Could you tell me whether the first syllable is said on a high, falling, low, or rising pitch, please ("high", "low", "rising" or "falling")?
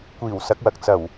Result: low